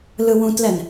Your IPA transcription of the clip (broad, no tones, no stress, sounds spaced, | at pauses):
l ɯ w ũ t l ɛ n